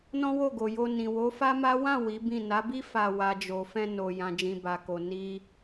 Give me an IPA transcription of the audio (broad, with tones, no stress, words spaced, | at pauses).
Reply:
nɔ̃˦wo˦˨ɡo˨jo˧ nĩ˨wo˨˦fa˦ma˦ wã˦˨ wi˨˦bĩ˦˨ na˨˦bi˦ fa˧ wa˨d͡ʒo˨fɛ̃˧ no˨ jã˨d͡ʒĩ˨ ba˨ko˨ ni˧